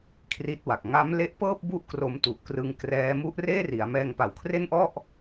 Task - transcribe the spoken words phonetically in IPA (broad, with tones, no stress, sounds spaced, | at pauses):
kʰ r i˥˩ t̚ w a˨˩ k̚ ŋ a˦˥ m l e˦˥ ʔ p ɤː˥˩ p̚ b u˥˩ ʔ k r o˧ m t u˨˩ ʔ k r ɯ˧ ŋ k r ɛː˦˥ m u˦˥ ʔ r eː˥˩ r i˩˦ a̯ m ɛː˧ ŋ p a˨˩ w kʰ r e˥˩ n ʔ ɔ˥˩ ʔ